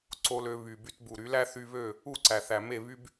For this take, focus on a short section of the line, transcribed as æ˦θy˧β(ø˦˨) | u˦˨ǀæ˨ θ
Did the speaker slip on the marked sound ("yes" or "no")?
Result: no